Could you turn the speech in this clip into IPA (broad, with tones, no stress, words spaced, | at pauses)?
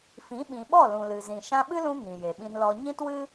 fĩ˨˦ɓĩ˨ɓɔ˦˨ lũ˨lɨ˨zĩ˨ ʃã˧ɓɨ˦lũ˧ ŋĩ˨je˨ɓĩ˧nlɔ˧ ɲĩ˦twɨ˦